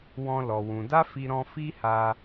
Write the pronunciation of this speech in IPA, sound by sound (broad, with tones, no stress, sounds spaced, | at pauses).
w ɔ̃˦ l ɔ˧ w ũ˧ d a˦ f i˧ ɾ ɔ̃˧ f i˦ h a˧